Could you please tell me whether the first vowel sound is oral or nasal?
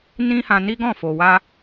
nasal